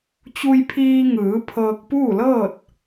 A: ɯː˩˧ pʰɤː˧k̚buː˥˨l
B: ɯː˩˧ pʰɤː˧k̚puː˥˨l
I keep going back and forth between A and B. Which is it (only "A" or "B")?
B